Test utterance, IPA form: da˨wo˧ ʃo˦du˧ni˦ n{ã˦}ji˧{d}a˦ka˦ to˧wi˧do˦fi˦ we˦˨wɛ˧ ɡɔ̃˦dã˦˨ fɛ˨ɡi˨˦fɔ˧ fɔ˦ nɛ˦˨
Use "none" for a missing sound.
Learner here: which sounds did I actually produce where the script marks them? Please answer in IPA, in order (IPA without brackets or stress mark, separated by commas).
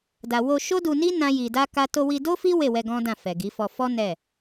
ã˦, d